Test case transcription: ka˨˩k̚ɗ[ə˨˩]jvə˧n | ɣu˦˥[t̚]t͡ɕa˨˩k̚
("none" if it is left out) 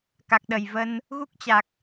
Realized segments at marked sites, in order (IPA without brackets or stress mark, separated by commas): ə˨˩, k̚